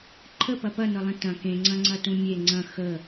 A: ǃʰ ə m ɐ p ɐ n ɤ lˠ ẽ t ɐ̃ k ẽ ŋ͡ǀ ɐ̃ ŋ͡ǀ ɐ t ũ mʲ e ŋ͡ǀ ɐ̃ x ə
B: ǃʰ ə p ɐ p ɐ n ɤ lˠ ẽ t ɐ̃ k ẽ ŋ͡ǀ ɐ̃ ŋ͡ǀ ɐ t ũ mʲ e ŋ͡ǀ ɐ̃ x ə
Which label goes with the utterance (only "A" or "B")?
B